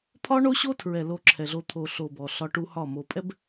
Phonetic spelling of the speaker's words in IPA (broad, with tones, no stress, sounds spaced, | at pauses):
pʰ ɒ˦ ɳ o˦ ɕ o˦ tʰ ɹ ɛ˨ l o˦ ǁʰ ɛ˨ ɮ o˦ t̪ʰ o˨ ɬ o˨ b ɔ˨ ɬ ɒ˦ ʈ u˦ h ɒ˦˨ m o˨ pʼ ɛ˦ b